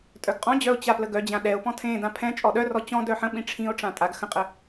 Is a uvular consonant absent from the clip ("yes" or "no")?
no